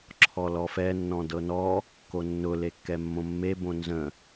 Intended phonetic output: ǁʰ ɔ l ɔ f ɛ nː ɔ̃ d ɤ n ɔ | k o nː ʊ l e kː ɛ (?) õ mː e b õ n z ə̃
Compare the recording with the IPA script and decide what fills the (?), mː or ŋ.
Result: mː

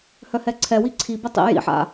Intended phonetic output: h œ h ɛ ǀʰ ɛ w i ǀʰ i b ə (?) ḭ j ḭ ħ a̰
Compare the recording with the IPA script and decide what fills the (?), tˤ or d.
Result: tˤ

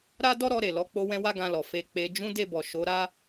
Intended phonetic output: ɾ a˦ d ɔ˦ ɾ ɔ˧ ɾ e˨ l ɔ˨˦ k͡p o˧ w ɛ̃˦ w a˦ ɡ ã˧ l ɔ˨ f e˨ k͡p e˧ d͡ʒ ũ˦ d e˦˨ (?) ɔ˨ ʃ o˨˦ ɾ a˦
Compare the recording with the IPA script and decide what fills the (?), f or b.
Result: b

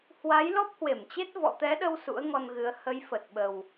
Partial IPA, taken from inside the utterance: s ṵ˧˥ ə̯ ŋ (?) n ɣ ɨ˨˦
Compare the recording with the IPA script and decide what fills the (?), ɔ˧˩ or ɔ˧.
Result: ɔ˧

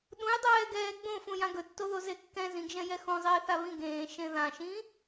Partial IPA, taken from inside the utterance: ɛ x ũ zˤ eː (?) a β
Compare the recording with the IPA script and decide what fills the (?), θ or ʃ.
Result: θ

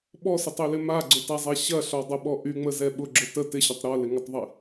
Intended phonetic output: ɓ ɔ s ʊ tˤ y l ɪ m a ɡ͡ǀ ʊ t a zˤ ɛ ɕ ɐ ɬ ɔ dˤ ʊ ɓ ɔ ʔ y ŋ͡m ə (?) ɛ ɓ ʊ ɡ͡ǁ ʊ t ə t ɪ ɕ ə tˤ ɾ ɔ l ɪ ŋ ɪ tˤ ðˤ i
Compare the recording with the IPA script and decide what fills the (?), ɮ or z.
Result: z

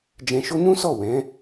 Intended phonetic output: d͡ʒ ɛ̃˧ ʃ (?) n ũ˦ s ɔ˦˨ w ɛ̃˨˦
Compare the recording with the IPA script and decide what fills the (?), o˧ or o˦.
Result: o˦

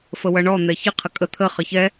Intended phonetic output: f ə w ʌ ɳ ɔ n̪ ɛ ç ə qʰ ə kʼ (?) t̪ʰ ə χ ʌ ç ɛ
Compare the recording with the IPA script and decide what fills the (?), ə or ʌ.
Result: ə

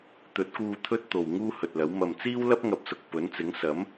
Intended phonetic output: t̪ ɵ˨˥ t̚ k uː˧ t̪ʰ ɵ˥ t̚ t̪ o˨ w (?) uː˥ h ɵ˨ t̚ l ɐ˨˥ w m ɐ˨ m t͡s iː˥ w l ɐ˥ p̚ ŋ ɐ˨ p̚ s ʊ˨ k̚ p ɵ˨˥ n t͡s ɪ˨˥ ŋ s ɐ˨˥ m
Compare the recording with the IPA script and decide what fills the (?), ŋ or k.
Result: ŋ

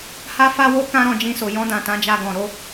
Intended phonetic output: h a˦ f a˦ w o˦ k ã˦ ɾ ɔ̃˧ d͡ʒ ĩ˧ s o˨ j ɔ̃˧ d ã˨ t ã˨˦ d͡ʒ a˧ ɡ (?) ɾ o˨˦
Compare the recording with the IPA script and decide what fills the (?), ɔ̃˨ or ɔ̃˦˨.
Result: ɔ̃˨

